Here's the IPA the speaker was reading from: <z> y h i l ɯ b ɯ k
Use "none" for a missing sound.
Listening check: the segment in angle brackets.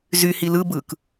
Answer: z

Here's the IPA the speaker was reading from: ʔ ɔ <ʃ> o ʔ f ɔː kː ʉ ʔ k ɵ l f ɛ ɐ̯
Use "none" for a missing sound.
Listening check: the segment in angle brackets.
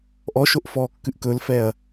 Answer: ʃ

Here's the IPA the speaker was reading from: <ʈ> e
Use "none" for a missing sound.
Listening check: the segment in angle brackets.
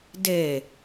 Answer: d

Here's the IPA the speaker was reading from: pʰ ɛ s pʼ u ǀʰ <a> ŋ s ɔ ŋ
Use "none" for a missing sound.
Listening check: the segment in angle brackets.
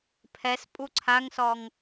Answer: a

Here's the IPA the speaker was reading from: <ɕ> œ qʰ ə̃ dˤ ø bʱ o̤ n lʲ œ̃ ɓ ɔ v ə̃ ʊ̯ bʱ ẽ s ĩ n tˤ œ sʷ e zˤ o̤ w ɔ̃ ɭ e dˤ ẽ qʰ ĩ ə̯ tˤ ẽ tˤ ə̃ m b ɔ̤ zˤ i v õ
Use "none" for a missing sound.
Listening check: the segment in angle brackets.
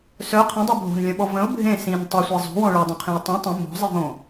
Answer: s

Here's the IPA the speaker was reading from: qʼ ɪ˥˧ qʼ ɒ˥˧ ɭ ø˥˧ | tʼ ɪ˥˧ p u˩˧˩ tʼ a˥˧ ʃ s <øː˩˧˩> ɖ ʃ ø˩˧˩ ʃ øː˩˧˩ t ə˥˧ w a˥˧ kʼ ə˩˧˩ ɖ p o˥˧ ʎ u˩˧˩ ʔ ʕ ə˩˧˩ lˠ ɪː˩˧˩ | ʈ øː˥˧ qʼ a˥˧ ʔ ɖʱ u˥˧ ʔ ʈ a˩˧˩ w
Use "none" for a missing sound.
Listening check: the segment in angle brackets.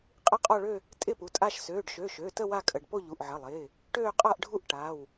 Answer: øː˩˧˩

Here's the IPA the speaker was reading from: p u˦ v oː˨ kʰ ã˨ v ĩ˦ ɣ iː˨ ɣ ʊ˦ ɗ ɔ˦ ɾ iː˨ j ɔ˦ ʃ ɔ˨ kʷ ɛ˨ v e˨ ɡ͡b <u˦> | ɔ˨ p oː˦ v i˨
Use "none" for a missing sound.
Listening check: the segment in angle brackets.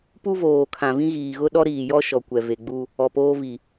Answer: u˦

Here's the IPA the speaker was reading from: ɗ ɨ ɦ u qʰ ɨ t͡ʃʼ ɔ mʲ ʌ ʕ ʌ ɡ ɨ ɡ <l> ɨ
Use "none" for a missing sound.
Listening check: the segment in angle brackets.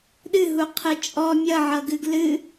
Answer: l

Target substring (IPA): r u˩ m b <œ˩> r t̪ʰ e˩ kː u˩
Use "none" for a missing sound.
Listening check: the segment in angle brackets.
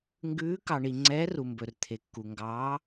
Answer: ɵ˩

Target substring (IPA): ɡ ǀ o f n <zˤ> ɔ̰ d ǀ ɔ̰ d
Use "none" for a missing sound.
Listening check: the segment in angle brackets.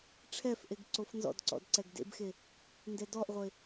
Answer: z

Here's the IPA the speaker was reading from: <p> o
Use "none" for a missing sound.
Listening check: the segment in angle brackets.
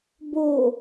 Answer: b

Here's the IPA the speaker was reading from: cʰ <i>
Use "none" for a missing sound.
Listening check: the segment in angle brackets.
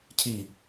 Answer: i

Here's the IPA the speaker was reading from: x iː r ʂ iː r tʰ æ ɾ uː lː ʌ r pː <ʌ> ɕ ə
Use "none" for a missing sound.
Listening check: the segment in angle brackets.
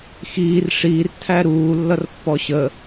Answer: ɔ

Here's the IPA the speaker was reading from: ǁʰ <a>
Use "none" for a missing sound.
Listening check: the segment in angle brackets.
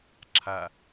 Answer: a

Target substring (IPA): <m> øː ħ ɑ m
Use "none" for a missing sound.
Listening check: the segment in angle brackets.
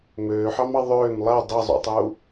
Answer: m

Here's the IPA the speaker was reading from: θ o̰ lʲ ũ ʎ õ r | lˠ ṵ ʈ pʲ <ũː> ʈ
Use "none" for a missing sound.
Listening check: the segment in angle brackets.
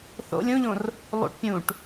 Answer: ũː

